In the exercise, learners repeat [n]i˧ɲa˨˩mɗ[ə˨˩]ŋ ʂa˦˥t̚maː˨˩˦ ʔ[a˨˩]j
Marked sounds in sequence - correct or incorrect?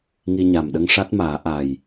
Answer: incorrect: ŋ, incorrect: ə˧, correct

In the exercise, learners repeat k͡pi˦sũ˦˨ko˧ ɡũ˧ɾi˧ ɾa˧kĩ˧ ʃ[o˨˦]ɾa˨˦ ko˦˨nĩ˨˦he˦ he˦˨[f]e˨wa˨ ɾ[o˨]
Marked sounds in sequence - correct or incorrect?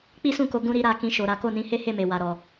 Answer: incorrect: o˨, incorrect: m, incorrect: ɔ˨

